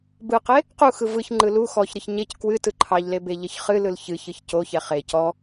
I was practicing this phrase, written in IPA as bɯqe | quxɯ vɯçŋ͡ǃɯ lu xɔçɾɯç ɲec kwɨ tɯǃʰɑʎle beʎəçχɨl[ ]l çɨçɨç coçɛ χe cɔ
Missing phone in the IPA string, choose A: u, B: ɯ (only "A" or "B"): B